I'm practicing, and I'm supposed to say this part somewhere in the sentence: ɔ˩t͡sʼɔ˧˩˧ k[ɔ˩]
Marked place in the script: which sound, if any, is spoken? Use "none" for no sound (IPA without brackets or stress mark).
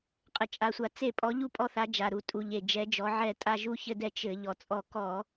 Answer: ɔ˧˩˧